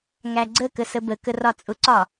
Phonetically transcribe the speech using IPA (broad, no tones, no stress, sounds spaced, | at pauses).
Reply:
ŋ æ ɡ͡ǀ ə k ə s ə b ə k ə r ɒ t͡sʼ ʊ ǀ ɒ